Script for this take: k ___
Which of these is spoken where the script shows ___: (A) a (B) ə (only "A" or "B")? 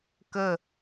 B